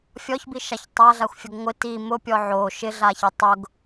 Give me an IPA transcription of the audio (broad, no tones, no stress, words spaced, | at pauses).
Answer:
fʲɔçbiʃaç tˤaɮaxʷfʲoɡ ŋʷɪ ti mʊpʲɔ ʕo ʃɪɮaçɪ tˤʊɡ